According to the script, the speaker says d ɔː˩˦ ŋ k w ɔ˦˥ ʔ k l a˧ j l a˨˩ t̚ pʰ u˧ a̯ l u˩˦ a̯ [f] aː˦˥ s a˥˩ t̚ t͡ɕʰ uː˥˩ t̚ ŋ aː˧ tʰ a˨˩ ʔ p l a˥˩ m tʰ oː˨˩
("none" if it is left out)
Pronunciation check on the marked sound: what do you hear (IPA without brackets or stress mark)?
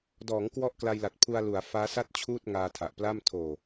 f